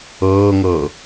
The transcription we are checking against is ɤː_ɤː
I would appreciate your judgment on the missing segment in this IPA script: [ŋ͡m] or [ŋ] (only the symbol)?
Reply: ŋ